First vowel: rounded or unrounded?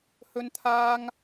rounded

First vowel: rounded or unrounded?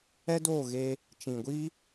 unrounded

